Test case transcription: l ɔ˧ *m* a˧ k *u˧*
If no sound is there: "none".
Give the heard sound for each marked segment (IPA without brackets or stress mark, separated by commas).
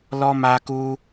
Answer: m, u˧